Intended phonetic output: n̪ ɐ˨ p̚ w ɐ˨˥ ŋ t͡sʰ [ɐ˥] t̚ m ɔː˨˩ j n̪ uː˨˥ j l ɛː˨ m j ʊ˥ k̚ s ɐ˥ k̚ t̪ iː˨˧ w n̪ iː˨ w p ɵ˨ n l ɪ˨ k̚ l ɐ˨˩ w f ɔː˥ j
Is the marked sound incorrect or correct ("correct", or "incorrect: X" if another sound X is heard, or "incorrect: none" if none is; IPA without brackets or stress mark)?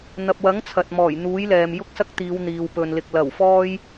incorrect: ɐ˨